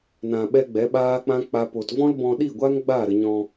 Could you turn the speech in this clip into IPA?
n ã˧ ɓ ɛ˦ ɡ͡b ɛ˨˦ ɓ aː˦ k͡p ã˦ k͡p a˦ p o˧ t v ɔ̃˦ l b ɔ̃˧ ɗ i˦˨ ɡʷ a˦ ŋ ɡ͡b aː˦˨ ɾ ə˧ ɲ ɔ̃˧

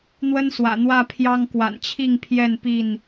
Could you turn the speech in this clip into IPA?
n̪ w ə˦ n s w ä̰˨˩ n̪ w ä˥˨ pʰ j ɑ˦ ŋ k w a̰˨˩ n t͡ɕʰ i˥˨ ŋ pʰ j ɛ˥˨ n p i˥˨ n

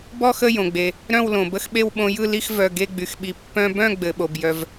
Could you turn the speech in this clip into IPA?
b ɔ˥˨ x ə˥˨ j õ˩ ɡ͡b e˩ | ɾ œ̃˥˨ w l õ˩ b ə˥˨ x ɓ e˥˨ w ɓ õ˧ j ɯ˥˨ l i˥˨ x v œ˩˧˩ ɡ e˥˨ ɡ͡b y˩ x ɓ i˩˧˩ pː œ̃˧ b œ̃˥˨ ɡ͡b ɘ˩ ɓ o˩ b j œ˩ v

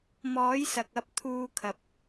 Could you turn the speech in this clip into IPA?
m ɔː˨˥ j s ɐ˨ k̚ ɐ˧ p̚ t̪ʰ uː˧ kʰ ɐ˨ p̚

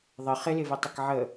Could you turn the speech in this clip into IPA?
ðˤ ə χ ɪ l ɪ v e tˤ ɪ k ʕ ə

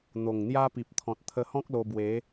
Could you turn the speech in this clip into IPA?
n̪ o˨˩ ŋ n̪ j a˦ p i˨ p̚ t̪ʰ ɔ̃˨ t̚ t̪ʰ ə˧ h ɔ̃˦ k̚ l o˧ b w e˨˦

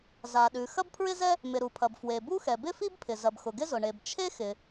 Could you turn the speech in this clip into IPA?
z a˩ ɗ ʉ˩ x ɐ˥ b pʰ ɹ ɪ˥ z ɛ˥ | m ɪ˩ ɾ u˩ pʰ ɐ˩ b f w e˩ b u˥ x ɛ˩ b ɪ˥ f i˥ b pʰ ɪ˩ z ɐ˩ b x ʊ˩ ɡ ɪ˥ z ʊ˩ ɳ e˩ b t͡ʃʰ e˥ x ɪ˩

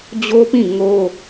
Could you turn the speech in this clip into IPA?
d͡ʑ o˦ p ĩ˦˨ ŋ o˦

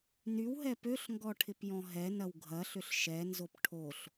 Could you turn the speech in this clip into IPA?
n y w ɦ ɛ p ø ɬ ŋ ɡ ɔ ʈʰ ɪ p j ɔ̃ ɦ ɛ n ɐ w ɡʱ ɐ ɬ ʏ ɬ ʃ ɛ n z o p ʈʰ o ɬ

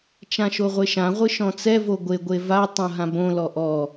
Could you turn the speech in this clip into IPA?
t͡ʃ ã ʃ o ʁʷ e ʃ ã ʁʷ ɨ ʃ ɔ̃ t͡s ɛ v o ɡʷ e ɡʷ e v a tˤ õ ɦ ã b õ l ɔ ʔ ɔ

